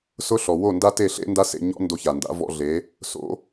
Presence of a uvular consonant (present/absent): absent